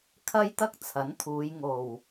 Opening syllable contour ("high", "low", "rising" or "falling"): high